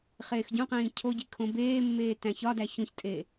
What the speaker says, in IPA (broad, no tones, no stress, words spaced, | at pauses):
χeːxɟũqĩː cʰoɟi kʰõbeːmːeː tæ̃çɒdæ çũçtʼe